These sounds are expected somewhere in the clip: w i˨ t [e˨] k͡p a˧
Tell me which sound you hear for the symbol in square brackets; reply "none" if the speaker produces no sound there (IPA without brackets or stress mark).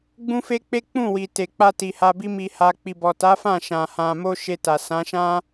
e˨